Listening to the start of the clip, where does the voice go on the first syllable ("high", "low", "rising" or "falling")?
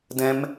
high